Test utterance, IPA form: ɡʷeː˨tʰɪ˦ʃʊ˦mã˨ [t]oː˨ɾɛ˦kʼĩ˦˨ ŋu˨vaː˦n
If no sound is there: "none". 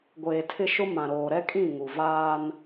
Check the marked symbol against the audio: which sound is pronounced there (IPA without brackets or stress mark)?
ɾ